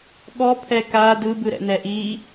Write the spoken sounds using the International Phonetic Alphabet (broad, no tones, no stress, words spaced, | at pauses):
ɠɔpʰɛ ka dɯbɯɾɛ̰nɛ ʔiː